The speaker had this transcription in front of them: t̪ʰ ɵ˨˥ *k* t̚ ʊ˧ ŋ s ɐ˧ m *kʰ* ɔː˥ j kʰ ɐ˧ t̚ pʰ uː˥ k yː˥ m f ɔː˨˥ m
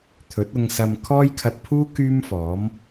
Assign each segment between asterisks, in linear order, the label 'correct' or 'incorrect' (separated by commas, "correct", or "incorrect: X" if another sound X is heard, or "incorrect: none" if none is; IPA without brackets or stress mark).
incorrect: none, correct